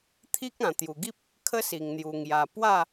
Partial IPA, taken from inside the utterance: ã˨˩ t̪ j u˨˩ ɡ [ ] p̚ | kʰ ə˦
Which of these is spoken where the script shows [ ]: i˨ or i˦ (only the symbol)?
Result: i˦